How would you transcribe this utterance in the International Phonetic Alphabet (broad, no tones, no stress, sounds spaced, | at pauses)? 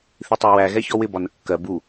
θ i tˤ æ w æ ɣ ɛ ç ɔ w ɪ b ɒ n ə kː ɜ b u